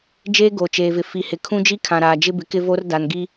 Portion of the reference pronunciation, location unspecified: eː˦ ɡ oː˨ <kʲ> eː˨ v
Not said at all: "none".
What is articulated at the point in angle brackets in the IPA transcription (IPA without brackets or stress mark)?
t͡ʃ